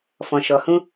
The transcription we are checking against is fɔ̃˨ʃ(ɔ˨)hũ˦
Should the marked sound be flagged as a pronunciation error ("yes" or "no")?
no